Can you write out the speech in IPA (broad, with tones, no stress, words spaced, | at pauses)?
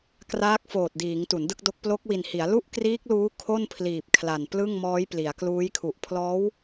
kraː˦˥k̚foː˨˩t̚diː˩˦ŋ tu˩˦ndɯ˥˩k̚do˦˥k̚ plo˦˥k̚wi˨˩nhi˩˦a̯ lu˥˩ʔkriː˦˥k̚luː˦˥ kʰo˥˩npʰliː˨˩p̚ kʰla˨˩n plɯ˥˩ŋmɔː˦˥j pli˩˦a̯kluː˦˥jkʰu˨˩ʔ pʰlɔː˦˥w